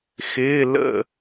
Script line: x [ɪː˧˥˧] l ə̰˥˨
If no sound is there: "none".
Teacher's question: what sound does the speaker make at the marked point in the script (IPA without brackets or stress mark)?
ɪː˧˥˧